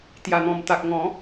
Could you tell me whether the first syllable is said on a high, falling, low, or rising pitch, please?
low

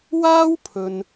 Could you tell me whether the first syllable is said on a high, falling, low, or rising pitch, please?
high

